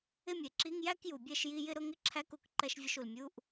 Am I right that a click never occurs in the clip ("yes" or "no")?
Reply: no